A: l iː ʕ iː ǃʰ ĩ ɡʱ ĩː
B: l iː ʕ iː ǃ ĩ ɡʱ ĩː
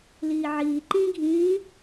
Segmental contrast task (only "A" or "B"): B